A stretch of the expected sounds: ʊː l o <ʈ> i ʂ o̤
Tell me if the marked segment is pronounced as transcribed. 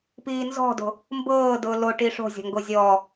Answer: yes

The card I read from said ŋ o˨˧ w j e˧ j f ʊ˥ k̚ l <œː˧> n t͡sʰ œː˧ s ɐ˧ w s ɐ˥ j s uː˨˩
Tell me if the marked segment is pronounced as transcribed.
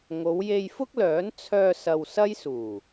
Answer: no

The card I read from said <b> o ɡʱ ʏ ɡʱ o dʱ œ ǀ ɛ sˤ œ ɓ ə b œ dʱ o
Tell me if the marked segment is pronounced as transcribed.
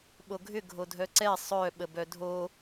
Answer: no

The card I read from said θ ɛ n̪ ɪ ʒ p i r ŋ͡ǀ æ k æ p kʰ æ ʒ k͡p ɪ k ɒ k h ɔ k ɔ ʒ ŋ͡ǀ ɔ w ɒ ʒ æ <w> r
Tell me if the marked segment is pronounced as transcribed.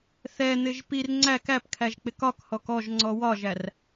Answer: no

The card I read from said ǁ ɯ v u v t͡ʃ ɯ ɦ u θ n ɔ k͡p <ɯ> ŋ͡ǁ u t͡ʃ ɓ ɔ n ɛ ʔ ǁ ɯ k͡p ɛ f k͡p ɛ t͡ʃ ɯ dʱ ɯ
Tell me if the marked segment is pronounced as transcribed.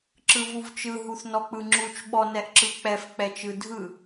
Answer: yes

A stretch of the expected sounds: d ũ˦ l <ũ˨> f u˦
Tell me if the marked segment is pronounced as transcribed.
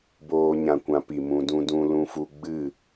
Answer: no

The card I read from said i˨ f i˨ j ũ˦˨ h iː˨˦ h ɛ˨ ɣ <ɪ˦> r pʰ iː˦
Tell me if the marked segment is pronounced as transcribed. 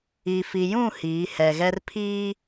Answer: no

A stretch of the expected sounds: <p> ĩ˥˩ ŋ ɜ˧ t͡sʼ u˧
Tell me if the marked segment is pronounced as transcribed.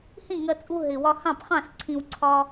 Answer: no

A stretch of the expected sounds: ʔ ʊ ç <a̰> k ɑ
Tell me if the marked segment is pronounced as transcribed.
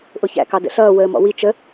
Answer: no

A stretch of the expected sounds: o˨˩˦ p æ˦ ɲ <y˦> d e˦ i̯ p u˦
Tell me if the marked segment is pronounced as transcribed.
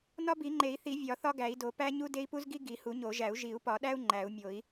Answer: no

